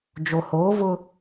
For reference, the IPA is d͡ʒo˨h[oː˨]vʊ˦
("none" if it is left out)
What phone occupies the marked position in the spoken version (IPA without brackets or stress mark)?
oː˨˦